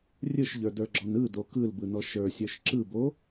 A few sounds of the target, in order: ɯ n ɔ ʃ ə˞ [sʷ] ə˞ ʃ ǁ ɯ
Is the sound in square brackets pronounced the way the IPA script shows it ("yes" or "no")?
no